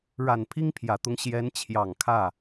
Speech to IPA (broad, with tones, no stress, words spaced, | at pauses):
ɻa˨˩n pʰi˥ŋpʰjä˨˩t̪ʊ˧˥ŋ ɕjɛ˧˥nt͡ɕʰjɑ˨˩ŋ kʰä˥˩